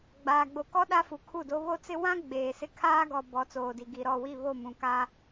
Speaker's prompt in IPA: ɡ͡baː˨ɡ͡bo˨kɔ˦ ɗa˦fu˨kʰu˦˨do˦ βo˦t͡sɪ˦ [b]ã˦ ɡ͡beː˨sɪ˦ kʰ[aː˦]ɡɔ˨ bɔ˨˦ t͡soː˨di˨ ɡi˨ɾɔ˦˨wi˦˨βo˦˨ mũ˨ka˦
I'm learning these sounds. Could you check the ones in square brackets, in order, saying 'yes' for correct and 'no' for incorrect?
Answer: no, yes

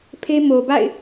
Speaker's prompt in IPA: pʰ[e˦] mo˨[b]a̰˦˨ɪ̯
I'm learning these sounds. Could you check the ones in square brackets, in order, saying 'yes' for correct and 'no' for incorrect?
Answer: yes, yes

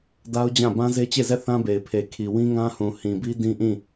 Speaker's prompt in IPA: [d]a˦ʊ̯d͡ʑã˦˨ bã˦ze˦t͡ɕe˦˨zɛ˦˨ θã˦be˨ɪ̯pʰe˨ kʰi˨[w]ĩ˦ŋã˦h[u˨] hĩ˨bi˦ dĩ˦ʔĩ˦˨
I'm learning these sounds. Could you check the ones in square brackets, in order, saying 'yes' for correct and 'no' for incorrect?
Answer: yes, yes, no

